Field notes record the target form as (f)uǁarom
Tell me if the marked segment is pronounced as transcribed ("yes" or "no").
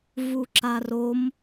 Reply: no